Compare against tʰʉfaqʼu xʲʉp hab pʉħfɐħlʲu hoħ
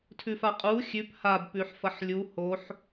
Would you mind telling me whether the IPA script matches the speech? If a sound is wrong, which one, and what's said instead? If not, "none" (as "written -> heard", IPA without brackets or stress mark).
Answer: none